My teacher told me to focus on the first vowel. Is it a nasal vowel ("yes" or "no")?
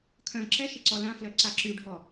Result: yes